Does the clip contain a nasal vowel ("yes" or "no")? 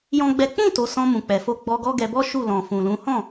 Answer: yes